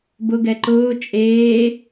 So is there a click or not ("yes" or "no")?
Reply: yes